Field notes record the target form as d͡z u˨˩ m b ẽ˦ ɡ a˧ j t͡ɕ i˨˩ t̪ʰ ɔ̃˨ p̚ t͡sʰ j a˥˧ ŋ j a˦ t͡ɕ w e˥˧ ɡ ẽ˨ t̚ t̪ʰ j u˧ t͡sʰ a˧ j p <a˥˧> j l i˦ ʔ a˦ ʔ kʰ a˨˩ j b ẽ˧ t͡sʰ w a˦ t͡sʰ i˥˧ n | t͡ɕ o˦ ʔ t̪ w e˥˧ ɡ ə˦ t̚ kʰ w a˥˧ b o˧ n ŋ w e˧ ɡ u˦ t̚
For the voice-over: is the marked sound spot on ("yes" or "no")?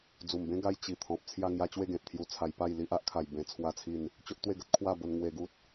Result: yes